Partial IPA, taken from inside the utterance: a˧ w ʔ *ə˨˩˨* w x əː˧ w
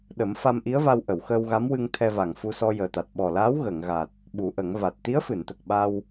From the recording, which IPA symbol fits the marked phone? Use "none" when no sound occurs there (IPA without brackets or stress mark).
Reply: ə˨˩˨